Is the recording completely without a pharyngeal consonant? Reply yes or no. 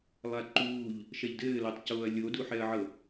no